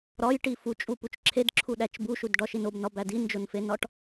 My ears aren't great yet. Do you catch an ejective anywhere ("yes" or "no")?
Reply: yes